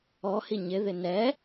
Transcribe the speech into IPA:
ɔ h i ɲ ɪ ð ɪ n ɛ

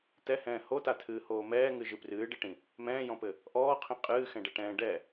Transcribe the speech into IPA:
t̪ ɛ h ɛ̃ː h o t̪ a t̪ʰ ɨː h oː m ɛː ŋ ɨ ʒ ɨ p r ɨː ɖ e ʈ ĩ | m ɛ̃ː j ɔ̃ p ɘ | ʔ ɔː qʰ ĩ qʼ ɨː x ɛ̃ ɖ ɛ ʈ ɛ̃ː ɖ ɛ

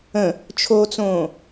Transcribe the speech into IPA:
ə̃ | t͡ʃʰ o t͡s õː

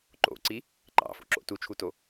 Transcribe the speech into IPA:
ǃ o̰ ǀ i | ǃ ɑ̰ f o̰ ǁ o̰ t u t͡ʃʰ u t o

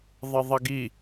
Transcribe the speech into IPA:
ðˤ ə ðˤ ʌ ɡ i

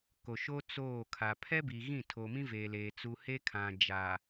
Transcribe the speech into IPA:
k o˨ ʃ o˦ t͡s oː˦˨ kʰ a˨ pʰ ɛ˦ b i˨ ɣ ĩ˦˨ tʰ o˨ m ĩ˦ v e˨ l eː˨ t͡s u˨ h eː˦ kʰ ã˨ d͡ʒ a˨

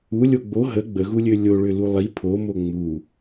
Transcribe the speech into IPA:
u lʲ o ɡ͡b o ɦ ə ɡ͡b ə ɣ u lʲ ø lʲ o ɭ ø l u lˠ i pʰ o m o ŋ͡m u

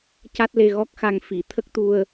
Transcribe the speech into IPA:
c a˦˥ t̚ l e˧ ɣ ɔ˦˥ k̚ x a˧ ŋ f i˨˩˨ t̪ʰ ə˦˥ k̚ t̪ u˧ ə̯

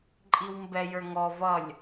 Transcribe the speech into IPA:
ǃʼ i w m b ɛ j ə˞ ŋ ɔ v ʌ lʲ

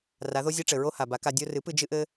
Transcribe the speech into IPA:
r a˩˥ ð o˥ zʲ e˥ ʈ͡ʂ ɘ˩ ɹ o˥ h a˩ b a˩˥ k a˧ dʲ o˧ r ɨ˩˥ p ɨ˧ d͡ʒ ɨ˥ ʔ ɘ˥

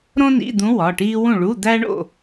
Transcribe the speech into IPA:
ɾ õ˥ n ḭ˧˥˧ d̪ ũ˧˥ w ɒ˩˧˩ ʈ iː˥ w ũ˥˨ ɭ u˧˥˧ d̪ æ˥ ɳ o̰˥˨

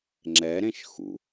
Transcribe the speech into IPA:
ŋ͡ǁ ɛ ɾ ẽ ʃ x ṵ

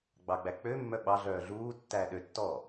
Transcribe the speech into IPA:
ɡ͡b ɑ ɡ͡b æ k͡p ø mː œ ɓ ɑ ɮ œː ɮ uː tː æː ɗ ø tː ɔː

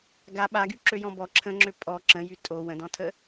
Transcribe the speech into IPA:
ɡ a ɓ a ɡ y ǁ ø j ɔ̃ b ɔ ǁʰ ə̃ ŋ͡ǁ ø pʼ ɔ ǁ ə̃ j y tʼ o w ə̃ d ɔ̃ tʰ ə

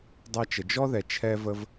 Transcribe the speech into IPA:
dˤ ɛ˥ t͡ʃ ə˧ d͡ʒ ɔ˥ ð ɛ˧ t͡ʃʰ ɛ˥ v ə˥ v

